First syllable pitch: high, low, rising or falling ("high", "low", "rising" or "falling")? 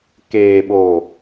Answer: low